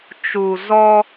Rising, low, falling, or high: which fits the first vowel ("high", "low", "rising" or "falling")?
low